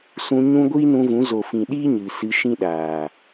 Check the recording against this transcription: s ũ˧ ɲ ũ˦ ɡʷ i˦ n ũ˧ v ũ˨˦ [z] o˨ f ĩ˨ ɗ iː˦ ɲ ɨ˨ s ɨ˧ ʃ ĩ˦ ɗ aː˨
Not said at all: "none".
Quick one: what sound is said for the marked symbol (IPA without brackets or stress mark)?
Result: z